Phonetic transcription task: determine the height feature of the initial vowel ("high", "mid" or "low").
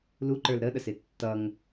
high